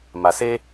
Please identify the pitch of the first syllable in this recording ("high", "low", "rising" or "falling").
low